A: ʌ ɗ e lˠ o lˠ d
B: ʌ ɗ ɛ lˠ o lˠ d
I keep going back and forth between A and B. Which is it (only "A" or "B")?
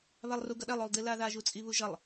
B